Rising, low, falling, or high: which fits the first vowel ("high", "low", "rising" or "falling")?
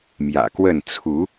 low